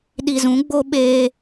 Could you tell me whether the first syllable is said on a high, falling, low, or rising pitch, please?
low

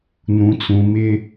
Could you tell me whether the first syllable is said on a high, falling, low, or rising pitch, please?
low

